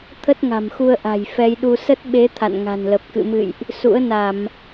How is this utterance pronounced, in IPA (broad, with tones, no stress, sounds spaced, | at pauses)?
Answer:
t̪ʰ ə˦˥ t̚ ŋ a̤˨˩ m x u˧ ə̯ ʔ a̤˨˩ j f ɛ˧ j ɗ u˧ s ə˦˥ t̚ ɓ e˨˦ t̪ʰ a̰˧˨ n ŋ a̤˨˩ n l ə˨˩ p̚ k ɨ̰˧˨ m ɨ̰˧˨ j ʔ | s ṵ˧˥ ə̯ n a˧˩˨ m